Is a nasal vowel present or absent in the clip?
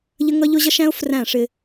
present